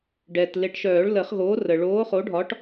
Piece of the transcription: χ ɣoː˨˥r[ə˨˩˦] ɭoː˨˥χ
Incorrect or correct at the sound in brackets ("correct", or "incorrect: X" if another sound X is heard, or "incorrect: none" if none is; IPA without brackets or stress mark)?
incorrect: ə˩